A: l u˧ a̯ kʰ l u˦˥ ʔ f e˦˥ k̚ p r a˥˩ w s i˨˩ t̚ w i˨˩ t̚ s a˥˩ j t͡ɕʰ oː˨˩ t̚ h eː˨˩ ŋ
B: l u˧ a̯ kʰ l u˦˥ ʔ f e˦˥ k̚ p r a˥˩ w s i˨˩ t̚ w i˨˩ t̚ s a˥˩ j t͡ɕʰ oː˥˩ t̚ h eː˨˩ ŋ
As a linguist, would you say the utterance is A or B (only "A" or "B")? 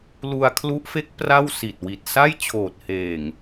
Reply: A